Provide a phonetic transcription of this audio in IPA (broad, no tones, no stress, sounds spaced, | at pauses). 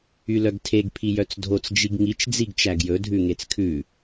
y l œ ɡ tʰ e ɡ pʰ i j œ t͡s dʱ o t͡s d͡ʒ i ɡ ŋ i t͡ʃ d͡z i ɡ t͡ʃ æ ɡ j ɵ dʱ ʉ ŋ e t͡s kʰ ʉ